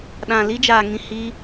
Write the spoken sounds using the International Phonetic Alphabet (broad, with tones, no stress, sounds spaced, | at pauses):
ɗ ã˨ l i˦ d͡ʒ aː˨ ŋ ĩ˨ h i˧